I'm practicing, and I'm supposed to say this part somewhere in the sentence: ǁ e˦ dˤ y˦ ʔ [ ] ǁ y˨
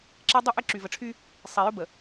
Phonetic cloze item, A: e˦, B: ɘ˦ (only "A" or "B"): B